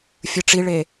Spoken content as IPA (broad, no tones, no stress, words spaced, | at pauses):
fʲɯʈ͡ʂiɭe